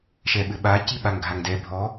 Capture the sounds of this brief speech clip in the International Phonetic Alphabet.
ʃ ɛ ɓ ɘ ɓ a c i ɓ a ŋ ɡʱ a ŋ d ɛ bʱ ɔ

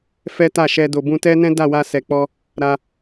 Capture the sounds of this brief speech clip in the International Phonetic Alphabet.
f ɛ˦ t a˦˨ ʃ ɛ˧ d o˨ b ũ˧ t ɛ˦ n ɛ̃˦ d a˦˨ w a˧ s ɛ˨ k͡p ɔ˧ | ɾ a˧

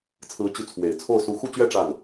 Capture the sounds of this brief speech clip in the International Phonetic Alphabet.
t͡sʰ ɹ̩˧˥ t͡ɕ y˧˥ t͡sʰ w e˨˩ ɪ̯ t͡sʰ o˥˩ ʊ̯ s u˧˥ x u˥˧ t͡ɕ ɥ ɛ˥˧ ʈ͡ʂ a˥˩ n

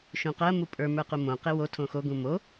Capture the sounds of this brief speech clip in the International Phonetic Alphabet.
ʃ ũ q ɜ m u pʼ ə˞ m ə˞ q u m õ q e w o tʰ õ x o ɡ ũ m o

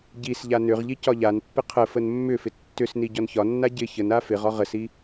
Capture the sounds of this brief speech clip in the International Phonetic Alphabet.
ɟ i s ʎ a n ʏ ʁ ʎ i c ɒ ʎ a n pː ɪ qʰ ə f ə n mː ʏ f ɪ tː ʏ s n i ɟ ɒ n ç ɒ nː a ɟ ɪ ç ə n a f ɪ ʁ ɒ ʁ ə s i

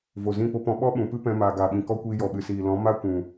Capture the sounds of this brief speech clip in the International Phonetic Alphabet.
v o˨ z ĩ˦˨ p o˦ p ɔ̃˧ ɓ ɔ˦ ɓ ũ˨ p ɨ˦ p ɛ̃˧ m aː˨ ɡ aː˨ ɓ ĩ˨ k ɔ˦ kʷ iː˧ j ɔ˨ ɓ ɨ˨ s iː˨ l ɔ̃˨˦ m a˦ kʷ ũ˨

